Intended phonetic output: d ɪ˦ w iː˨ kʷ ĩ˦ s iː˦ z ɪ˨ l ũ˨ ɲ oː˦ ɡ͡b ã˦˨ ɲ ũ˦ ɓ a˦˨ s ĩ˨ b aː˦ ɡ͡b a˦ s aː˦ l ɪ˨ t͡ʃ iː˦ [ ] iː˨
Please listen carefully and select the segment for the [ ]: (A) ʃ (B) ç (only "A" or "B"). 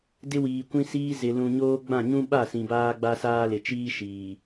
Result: A